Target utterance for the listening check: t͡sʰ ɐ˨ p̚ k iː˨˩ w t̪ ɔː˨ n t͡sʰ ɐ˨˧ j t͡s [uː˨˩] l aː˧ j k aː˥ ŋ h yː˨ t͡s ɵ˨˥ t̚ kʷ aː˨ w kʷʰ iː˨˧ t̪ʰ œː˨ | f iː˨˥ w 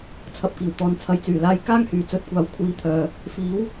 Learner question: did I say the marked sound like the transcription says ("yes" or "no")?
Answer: no